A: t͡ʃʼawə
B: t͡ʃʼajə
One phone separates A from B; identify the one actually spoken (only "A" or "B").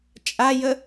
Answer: B